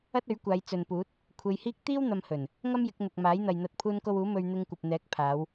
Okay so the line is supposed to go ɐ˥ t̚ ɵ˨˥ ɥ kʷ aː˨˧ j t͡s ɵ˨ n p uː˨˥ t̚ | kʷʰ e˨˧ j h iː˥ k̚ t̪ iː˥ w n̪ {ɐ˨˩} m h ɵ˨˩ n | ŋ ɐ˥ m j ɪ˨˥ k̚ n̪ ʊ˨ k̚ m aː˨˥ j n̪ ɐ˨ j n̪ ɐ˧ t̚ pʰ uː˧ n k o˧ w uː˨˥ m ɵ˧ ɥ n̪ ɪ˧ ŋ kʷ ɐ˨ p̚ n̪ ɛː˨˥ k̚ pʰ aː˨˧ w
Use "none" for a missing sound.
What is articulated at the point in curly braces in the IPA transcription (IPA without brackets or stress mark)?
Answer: ɐ˧